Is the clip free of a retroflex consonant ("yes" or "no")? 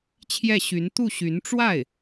no